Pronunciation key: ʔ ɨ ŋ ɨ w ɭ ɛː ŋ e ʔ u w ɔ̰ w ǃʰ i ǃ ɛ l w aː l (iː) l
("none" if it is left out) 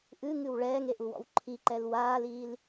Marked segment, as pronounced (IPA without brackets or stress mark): iː